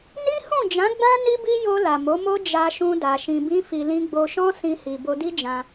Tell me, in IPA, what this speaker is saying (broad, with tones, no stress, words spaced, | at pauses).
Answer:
ni˦hũ˦˨ d͡ʒã˨˦ɡ͡bã˦ ni˦bi˦ jo˧ la˨mo˨˦mo˦ d͡ʒa˧ʃũ˧da˨ ʃĩ˨bĩ˧fi˨ lĩ˧ɡ͡bo˧ʃɔ̃˦ sĩ˧hi˨ bo˧di˦ d͡ʒã˧